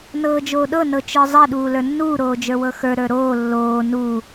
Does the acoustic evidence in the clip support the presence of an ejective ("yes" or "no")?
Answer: no